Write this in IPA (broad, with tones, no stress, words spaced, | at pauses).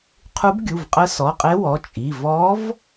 qʰu˧˥bɡʲu˩˧˩v qʼə˧˥sɔ˩˧˩qʼe˧˥ wɔ˩˧˩t͡ʃʼi˩˧˩ vɔ˧˥v